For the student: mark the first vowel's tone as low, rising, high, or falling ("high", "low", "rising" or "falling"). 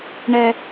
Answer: high